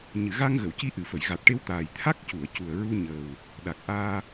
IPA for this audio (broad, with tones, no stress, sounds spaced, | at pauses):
ɲ ɨ˨˩˨ ɣ a˧ ŋ ɣ ə˨˩˨ w c i˧ ʔ ɨ˨˩˨ f ə˨˩˨ j ɣ a˨˩ t̚ ʈ e˧ w t̪ aː˨˩ j t̪ʰ a˦˥ k̚ c u˨˩˨ ə̯ c u˨˩ ə̯ ɹ u˧ ɲ əː˨˩ w | ɗ a˨˩ k̚ ʔ aː˧